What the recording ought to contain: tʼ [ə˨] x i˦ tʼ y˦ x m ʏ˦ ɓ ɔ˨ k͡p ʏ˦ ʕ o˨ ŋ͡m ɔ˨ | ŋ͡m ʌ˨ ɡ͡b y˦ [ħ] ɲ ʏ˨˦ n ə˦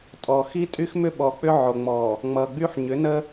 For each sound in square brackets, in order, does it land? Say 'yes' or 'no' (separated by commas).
no, yes